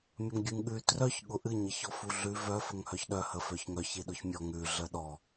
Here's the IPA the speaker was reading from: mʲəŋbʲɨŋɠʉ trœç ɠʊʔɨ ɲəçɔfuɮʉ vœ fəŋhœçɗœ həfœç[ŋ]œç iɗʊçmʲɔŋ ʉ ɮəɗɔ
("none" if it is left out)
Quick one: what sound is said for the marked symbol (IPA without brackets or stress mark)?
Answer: ŋ